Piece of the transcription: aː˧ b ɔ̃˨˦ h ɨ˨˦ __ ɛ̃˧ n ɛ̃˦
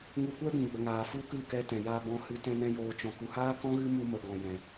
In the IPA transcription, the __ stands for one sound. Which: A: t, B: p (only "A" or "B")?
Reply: A